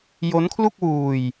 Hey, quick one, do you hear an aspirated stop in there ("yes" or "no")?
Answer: yes